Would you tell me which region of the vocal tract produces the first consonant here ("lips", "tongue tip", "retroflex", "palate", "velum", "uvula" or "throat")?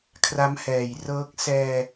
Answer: velum